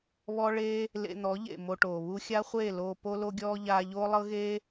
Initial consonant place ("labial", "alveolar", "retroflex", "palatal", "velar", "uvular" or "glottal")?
labial